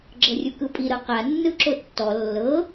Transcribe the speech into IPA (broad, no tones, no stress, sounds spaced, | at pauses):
ɡ͡ǁ ɤ rʲ u k ɯ pʼ i ɾ ɤ q a nː ɯ ǁ o tː ɔ lː ɤ